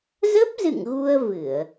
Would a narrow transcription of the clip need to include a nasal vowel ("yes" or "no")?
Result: no